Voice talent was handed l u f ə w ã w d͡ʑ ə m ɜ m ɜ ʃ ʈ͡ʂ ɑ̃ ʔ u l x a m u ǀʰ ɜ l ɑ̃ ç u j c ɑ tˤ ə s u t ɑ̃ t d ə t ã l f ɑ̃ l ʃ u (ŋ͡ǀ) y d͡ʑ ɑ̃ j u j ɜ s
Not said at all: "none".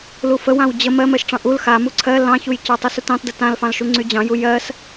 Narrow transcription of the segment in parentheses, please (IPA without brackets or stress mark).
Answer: ŋ͡ǀ